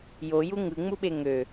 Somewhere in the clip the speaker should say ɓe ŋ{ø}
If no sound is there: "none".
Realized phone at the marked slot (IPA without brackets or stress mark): ø